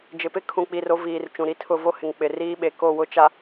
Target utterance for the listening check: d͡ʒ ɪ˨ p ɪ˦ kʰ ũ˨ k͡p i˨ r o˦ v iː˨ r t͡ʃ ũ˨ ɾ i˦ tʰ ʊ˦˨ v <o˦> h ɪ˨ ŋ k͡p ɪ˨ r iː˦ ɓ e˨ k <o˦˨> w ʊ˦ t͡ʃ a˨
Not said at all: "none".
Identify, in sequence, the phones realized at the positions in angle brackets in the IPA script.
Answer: o˦, o˦˨

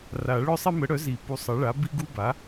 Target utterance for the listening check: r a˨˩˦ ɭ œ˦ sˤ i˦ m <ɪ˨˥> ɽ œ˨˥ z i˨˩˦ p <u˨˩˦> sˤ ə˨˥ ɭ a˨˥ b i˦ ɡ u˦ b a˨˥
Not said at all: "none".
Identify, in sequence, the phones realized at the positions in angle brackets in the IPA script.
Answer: ə˨˥, u˨˥

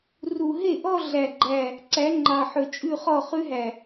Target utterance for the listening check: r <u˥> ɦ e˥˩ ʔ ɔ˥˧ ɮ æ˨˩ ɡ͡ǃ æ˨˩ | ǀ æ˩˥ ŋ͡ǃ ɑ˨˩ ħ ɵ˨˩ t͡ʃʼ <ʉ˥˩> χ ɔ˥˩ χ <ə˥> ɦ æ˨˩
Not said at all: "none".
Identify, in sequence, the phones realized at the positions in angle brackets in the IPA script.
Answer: u˨˩, ʉ˥˩, ʉ˥

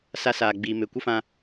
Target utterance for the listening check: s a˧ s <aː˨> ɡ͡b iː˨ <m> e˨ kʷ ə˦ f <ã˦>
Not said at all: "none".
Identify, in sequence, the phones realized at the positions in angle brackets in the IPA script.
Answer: aː˨, m, ã˧

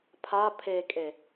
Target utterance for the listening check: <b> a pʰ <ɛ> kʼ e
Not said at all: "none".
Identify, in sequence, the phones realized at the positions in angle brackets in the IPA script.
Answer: pʰ, e

